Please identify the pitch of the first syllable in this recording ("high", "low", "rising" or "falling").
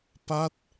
falling